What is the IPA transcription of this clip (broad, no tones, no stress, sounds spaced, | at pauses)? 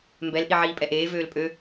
m b ɛ l ʔ i ʕ iː pʼ ɛ ʔ eː v øː l pʼ ø